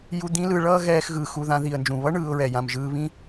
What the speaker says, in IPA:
j u˦ d̪ ĩ˥ l ɯ˦ ɭ ʌː˥ ɣ ɛː˦ x ɣ ɯː˨ x u˨ ð ã˦ ð i˨ ə̯ n d͡ʒ ũ˩ β ʌ˥ ɳ ɯː˨ ʊ̯ ɹ ɛ˩ j ã˩ m ʒ ɯː˨ β ĩ˦

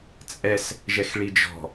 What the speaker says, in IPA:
t͡sʼ ɛ s | ʒ ɛ x ɭ i d͡ʒ ɔ̤

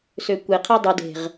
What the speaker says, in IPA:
s ø kʷ e qʰ e dˤ u d e̤ ʁ

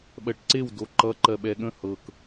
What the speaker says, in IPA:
ɓ ɜ ʈ ǀ e w d o ǃ ʌ ǃ ɜ ɓ ɛ ɠ ə̃ h ɤ k

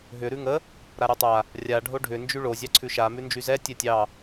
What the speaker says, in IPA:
ɦ ʏ ɾ ʉ ŋ ə | ɾ a ɾ y tˤ a | rʲ a ɖʱ o ɖʱ ʏ n d͡ʒ y ɭ o zʲ ɑ ǀʰ ʉ ʃ a m ʉ n d͡ʒ y z ɛ tʲ ɛ tʲ ɑ

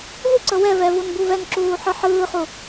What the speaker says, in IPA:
v u ǀ ɤ w ɛ v ɛ v u n b u v ɛ n ǁ uː ħ ɯ ħ ɯː χ u

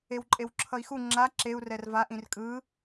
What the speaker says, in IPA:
e w ǃʼ e w ǁʰ ʌ i̯ x u ŋ͡ǁ a ǁ e u̯ r ɛ r v a ʔ ĩ r kʼ ɯ

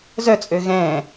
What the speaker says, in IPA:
z œ t͡sʼ ø ɣ ɛ̃ː

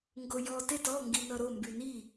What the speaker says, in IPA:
ŋ ɡ o j ɔ t e t ɔ ŋ ɡ i n ʌ ɾ o m b y n i

